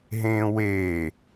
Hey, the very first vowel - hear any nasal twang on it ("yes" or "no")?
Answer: yes